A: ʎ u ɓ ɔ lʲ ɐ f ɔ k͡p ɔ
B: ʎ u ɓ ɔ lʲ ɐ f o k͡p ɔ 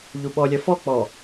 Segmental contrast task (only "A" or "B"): A